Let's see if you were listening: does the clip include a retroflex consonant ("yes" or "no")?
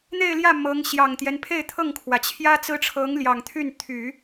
yes